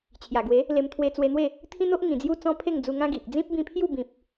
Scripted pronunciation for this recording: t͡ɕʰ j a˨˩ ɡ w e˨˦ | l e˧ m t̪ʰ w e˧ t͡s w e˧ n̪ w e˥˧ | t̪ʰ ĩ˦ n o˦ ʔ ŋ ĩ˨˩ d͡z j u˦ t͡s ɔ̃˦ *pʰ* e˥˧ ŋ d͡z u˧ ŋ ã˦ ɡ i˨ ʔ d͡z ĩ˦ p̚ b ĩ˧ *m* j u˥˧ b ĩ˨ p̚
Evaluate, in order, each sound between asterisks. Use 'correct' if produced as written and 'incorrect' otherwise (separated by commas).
correct, incorrect